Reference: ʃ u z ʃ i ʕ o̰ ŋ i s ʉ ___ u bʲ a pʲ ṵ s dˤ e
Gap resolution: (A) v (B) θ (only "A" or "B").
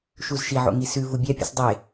A